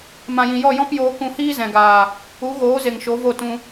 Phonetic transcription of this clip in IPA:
m ã˨ j ĩ˨ j ɔ˦˨ j ɔ̃˦ p j oː˧ k ũ˧ h iː˦ z ɛ̃˨ ɡ aː˨ | u˨˦ ɣ oː˨˦ z e˨ ŋ ʃ o˨˦ v o˦˨ t ũ˧

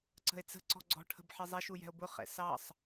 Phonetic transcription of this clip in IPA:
ǀ ə̤ e̯ t͡s ə̤ ǀ ɔ̤ ɡ͡ǀ ɔ̤ ʈʰ ə̤ b ħ ɪ zˤ ɛ ʃ u j ɛ̤ o̯ b ʊ χ ɛ̰ s ɑ sˤ

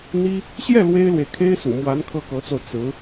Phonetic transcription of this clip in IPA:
n̪ i˥ | ɕ j ɛ˥˩ l w e˥ ɪ̯ l w e˨ ɪ̯ kʰ e˥ ɪ̯ s ṵ˨˩ m w a˧˥ n kʰ ɤ˥˩ k ɤ˧˥ t͡s o˧ ʊ̯ t͡s ɹ̩˧˥

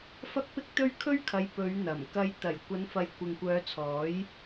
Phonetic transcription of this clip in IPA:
f ɐ˥ k̚ p ɪ˥ k̚ t̪ ɵ˥ ɥ kʰ ɵ˥ ɥ kʰ ɐ˨˧ j p ɵ˨˧ ɥ n̪ ɐ˨˩ m k ɐ˧ j t̪ ɐ˨˩ j kʷ ɐ˨˧ n f ɐ˨ j kʷ ɪ˨ ŋ kʷ œː˨˧ t͡sʰ ɔː˨˥ j

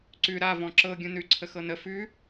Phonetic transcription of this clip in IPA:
ǀ ʉ ɾ a v ɔ̃ ǁ ɤ ɡʲ ũ n ʉ ǀʰ ə x ɤ n ə f ʉ

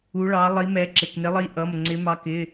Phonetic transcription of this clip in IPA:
u˨˦ ɭ ɑ˨˦ lˠ i˨˦ m ɛ˨˦ ǁ ɪ˩˧˩ k n ɪ˨˦ lˠ i˨˦ ʔ ʌ˩˧˩ m ŋ͡ǀ ɪ˨˦ m ɑ˨˦ k ɪ˩˧˩

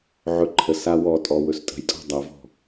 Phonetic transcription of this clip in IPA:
ʕ ɵ ǃʰ ə s a w ɔ tʼ ɔ w ɵ s tʼ ə̤ j tʼ ɔ̤ dˤ a v ɔ̤

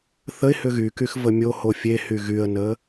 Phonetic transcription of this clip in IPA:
θ ə ɪ̯ h ʏ ɣ y k y x v ə mʲ o h o fʲ e h y ɣ y ə̯ n ə

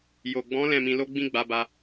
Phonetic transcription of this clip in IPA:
j o˨ ɡ͡b ɔ̃˨˦ l ɛ̃˦˨ m ĩ˧ l o˦ ɡ͡b ĩ˦ ɡ͡b a˧ b a˧

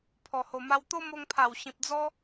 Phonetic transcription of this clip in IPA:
pʰ ɔ˨˩ h o˨˩ m a˧ w t̪ o˦ m o˧ ŋ pʰ a˨˩ w ɕ ĩ˨ p̚ d͡z ɔ˦

